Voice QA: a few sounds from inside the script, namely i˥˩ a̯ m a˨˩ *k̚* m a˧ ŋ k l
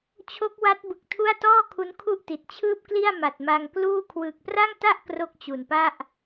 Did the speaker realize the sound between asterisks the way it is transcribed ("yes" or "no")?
no